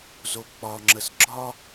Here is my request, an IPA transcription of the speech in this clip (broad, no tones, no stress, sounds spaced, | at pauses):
z o k͡p ɒ ŋ͡ǁ ə s ɡ͡ǁ ɒ